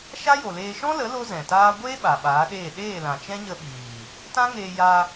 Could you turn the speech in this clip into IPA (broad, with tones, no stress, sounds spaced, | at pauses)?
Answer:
ʃ a˦ j o˨ l eː˧ ʃ ɔ̃˦ l ə˨˦ l o˦ z ɛ̃˨ t aː˦ ɡʷ eː˦ ɓ a˨ ɓ aː˨˦ ɗ eː˦˨ ɗ eː˦˨ l ã˨ t͡ʃ ɛ̃˦ ɲ ə˧ ɓ iː˨ | t ã˦ ŋ eː˧ j a˧